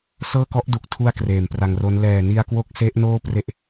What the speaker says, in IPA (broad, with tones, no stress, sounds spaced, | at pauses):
s ɤː˥˩ k ɔ˦˥ ʔ d u˨˩ k̚ tʰ u˥˩ a̯ k r eː˨˩ m p r a˧ ŋ r o˦˥ n l ɛː˨˩ n i˧ a̯ k w o˦˥ k̚ s e˦˥ ʔ n oː˥˩ p r e˥˩ ʔ